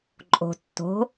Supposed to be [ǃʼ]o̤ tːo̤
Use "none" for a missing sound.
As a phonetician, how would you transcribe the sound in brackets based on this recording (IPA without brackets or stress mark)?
ǃʼ